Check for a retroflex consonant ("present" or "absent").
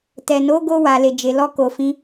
absent